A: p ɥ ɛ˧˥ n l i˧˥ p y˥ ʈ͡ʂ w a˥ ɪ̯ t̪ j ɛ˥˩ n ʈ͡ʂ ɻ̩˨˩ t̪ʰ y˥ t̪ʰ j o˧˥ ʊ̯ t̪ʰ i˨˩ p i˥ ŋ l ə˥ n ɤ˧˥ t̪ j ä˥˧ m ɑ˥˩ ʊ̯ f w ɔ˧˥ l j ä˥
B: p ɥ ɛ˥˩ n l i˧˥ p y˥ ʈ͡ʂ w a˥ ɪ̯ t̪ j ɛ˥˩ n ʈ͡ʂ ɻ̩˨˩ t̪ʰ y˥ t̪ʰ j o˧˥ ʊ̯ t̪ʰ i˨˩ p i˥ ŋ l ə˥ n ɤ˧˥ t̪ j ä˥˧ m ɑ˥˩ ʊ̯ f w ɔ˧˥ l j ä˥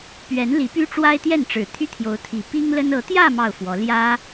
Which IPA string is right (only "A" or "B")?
A